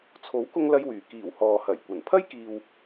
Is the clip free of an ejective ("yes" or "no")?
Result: yes